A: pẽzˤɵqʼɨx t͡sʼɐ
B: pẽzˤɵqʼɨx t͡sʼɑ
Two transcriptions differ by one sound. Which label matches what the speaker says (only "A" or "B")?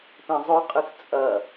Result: A